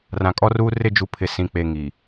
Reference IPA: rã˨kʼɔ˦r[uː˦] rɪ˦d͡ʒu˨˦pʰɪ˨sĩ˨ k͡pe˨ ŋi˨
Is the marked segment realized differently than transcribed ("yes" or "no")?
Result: no